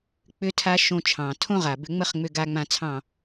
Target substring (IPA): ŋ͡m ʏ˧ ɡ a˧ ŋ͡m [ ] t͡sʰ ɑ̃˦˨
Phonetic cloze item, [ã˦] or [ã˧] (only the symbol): ã˧